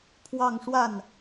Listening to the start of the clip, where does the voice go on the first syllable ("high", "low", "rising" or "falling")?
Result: falling